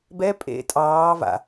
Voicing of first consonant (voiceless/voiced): voiced